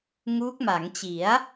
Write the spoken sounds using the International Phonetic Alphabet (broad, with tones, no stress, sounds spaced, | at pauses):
ŋ uː˦˥ k̚ m a˩˦ ŋ t͡ɕ i˩˦ a̯